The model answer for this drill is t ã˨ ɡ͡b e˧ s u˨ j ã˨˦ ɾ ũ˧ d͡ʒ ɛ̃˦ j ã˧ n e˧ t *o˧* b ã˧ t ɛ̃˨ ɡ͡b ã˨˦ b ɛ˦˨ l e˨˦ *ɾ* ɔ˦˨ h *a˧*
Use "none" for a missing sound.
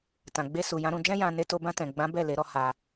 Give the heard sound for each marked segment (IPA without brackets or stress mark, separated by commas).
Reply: o˧, ɾ, a˧